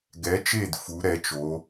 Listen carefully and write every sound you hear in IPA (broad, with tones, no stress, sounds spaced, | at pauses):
ɡ ɛ˩˧ t͡ʃ e˧˩ d f u˩˧ ɾ ɛ˩˧ t͡ʃ o˩˧